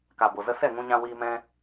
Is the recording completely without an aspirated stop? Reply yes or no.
yes